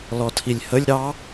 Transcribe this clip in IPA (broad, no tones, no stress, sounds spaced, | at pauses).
l ɔ tʰ i lʲ h ə lʲ ɾ ɑ